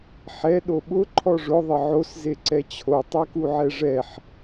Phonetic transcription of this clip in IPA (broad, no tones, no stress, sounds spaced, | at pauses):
ħ ɛ ɗ o ɓ ʊ ǃʰ ɔ ʐ ʊ ðˤ ɪ ʕ o s z e ǀ ɛ t͡ɕʰ o tˤ e k u ʕ ɛ ʐ ɛ ħ